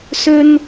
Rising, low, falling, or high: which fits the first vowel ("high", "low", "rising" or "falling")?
high